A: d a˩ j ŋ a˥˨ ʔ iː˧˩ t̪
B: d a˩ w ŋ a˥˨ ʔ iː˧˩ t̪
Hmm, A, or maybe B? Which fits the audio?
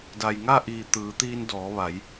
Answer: A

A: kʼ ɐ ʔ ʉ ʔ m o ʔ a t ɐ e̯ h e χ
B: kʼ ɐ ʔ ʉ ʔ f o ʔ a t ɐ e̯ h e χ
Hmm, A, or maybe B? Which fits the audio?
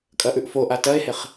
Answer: B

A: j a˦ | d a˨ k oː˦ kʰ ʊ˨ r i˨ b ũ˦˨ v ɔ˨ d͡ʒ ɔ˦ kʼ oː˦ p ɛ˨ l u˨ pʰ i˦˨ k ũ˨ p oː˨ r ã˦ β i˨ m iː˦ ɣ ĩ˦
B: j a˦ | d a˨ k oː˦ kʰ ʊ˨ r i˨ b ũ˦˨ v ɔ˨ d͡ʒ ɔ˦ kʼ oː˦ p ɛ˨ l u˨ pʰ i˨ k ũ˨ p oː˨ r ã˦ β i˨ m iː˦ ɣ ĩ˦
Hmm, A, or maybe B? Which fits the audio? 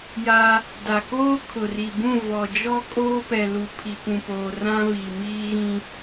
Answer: B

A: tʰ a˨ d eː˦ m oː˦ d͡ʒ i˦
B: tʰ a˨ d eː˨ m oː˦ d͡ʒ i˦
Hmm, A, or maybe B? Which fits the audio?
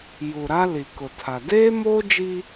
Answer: A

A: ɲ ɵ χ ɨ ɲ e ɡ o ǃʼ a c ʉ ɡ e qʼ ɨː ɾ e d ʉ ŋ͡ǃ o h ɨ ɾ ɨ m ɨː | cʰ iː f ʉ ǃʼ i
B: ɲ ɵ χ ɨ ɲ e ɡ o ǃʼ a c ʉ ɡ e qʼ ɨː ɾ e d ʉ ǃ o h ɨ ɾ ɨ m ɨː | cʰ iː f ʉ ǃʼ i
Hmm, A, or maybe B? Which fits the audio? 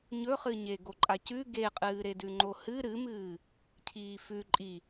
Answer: A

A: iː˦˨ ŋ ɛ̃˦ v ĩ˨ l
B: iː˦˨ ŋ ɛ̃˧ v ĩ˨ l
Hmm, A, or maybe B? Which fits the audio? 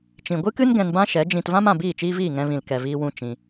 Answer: B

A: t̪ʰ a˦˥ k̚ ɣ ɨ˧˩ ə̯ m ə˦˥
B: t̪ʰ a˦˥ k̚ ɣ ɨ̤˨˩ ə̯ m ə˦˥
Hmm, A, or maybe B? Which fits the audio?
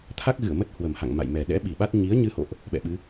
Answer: A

